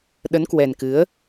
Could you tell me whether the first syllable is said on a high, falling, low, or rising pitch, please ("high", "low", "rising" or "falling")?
rising